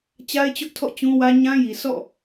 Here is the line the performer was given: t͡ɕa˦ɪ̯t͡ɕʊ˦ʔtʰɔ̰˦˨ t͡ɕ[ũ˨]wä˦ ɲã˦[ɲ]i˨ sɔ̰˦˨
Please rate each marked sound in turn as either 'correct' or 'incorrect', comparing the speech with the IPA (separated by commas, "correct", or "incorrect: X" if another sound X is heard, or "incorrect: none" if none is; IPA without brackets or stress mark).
incorrect: ũ˦, incorrect: j